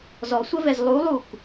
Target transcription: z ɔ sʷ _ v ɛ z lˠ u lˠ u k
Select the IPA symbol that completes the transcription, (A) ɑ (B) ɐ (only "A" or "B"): B